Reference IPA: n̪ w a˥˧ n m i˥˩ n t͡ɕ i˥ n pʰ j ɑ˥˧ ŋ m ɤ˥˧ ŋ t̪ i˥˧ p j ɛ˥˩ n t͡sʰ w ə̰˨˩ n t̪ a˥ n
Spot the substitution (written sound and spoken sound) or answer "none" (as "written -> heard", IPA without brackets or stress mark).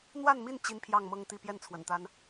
none